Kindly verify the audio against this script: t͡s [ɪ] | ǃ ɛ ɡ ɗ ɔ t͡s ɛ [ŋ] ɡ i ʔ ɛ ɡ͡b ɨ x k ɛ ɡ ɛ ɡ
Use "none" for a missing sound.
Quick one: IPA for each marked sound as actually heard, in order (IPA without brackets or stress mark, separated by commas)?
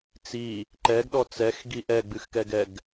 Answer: i, x